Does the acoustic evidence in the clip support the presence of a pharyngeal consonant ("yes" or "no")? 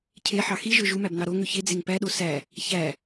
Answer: yes